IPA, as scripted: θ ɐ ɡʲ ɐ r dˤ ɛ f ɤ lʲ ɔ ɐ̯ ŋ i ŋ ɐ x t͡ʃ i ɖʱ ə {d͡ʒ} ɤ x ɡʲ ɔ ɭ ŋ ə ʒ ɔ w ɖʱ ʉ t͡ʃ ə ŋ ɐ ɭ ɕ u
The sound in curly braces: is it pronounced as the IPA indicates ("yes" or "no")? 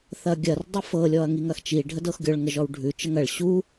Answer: no